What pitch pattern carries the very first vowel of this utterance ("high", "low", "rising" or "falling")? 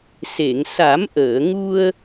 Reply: low